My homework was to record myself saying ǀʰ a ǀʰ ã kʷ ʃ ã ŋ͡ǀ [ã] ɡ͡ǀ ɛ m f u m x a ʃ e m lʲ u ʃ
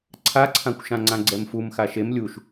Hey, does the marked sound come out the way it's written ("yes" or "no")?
yes